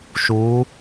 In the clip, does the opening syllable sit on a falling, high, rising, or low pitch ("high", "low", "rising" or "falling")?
rising